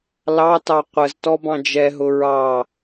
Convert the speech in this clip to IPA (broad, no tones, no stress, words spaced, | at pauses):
lɑtɑ qʷəz tɔbɑ̃d͡ʒɛɦʊ ɹɑ